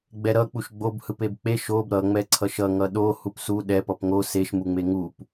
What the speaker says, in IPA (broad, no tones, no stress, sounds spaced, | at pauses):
ɡ͡b ɛ ɾ ʌ k͡p u ʃ ɡ͡b o b h ɯ p e b k͡p e ʃ o b ɾ ʌ ŋ͡m ɛ ǀʰ ʌ ʃ ʌ ŋ ʌ ɗ o h u p s u ɗ ɛ p ʌ p ŋ o s e ʃ m u ŋ͡m e ŋ u p